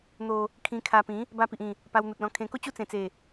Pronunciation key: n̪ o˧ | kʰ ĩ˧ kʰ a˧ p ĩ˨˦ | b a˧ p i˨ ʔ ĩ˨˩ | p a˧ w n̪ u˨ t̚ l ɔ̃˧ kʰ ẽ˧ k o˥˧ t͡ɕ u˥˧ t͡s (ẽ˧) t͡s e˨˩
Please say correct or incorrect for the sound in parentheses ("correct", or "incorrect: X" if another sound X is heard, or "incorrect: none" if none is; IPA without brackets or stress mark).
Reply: incorrect: ẽ˨˩